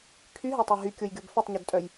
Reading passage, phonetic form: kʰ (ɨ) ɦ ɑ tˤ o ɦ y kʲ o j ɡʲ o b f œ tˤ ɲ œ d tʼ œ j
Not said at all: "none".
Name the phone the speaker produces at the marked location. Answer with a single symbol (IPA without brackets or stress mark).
y